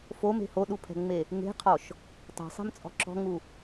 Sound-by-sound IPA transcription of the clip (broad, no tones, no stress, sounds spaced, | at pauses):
f o m e̤ h o ɗ u pʰ ɛ̤ ŋ͡m e | ŋ e̤ qʰ ɔ ʃ | tˤ e̤ sˤ e̤ m t͡sʼ ɔ̤ ǁ ɔ̤ ŋ u